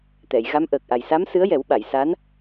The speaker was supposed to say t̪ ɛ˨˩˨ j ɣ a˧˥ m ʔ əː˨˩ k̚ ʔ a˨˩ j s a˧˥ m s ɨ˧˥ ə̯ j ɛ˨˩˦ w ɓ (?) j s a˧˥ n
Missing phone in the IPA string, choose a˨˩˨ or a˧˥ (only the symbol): a˨˩˨